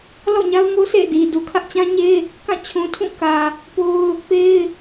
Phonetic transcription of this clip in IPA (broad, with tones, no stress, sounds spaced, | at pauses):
l ɔ̰˦˨ ɲ a˦ ʊ̯ ŋ o˦ s ḛ˦˨ d i˨ d u˨ kʰ ä˦ ʔ t͡ɕ ã˦ ɲ e˦ | k ã˦˨ t͡ɕʰ ũ˨ tʰ ũ˦˨ k ä˨ | p o˦ ʊ̯ | p e˦ ɪ̯